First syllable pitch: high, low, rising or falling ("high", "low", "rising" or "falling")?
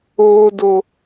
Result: high